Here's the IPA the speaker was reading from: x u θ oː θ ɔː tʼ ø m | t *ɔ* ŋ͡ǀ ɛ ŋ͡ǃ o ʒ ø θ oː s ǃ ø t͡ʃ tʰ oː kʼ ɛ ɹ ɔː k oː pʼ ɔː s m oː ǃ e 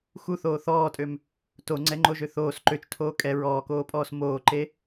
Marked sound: incorrect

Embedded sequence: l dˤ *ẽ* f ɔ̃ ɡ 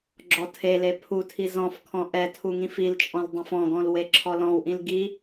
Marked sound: incorrect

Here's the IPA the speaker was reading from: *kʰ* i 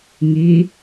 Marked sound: incorrect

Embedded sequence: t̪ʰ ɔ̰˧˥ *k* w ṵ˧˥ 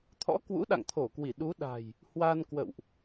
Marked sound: correct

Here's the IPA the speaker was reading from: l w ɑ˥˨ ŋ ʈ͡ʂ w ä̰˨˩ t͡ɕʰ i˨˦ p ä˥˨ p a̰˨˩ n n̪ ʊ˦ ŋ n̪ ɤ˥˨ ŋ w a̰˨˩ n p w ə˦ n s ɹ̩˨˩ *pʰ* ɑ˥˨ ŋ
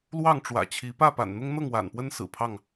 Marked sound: correct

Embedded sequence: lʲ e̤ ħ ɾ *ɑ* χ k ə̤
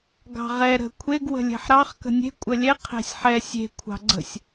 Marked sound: correct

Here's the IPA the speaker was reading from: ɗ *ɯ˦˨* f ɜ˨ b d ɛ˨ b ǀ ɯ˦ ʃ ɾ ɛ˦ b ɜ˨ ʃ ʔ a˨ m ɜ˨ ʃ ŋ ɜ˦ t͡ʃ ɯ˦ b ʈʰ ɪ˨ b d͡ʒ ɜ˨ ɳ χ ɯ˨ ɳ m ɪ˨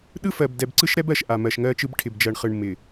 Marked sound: incorrect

